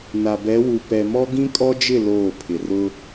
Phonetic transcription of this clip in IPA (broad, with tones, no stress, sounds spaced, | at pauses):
n a˨ b ɛ˨˦ w u˨ p ɛ˨ m ɔ˦ ɡ ĩ˦ kʼ ɔ˦ d͡ʒ ɪ˦˨ l oː˦˨ pʰ ɪ˨ r ʊ˦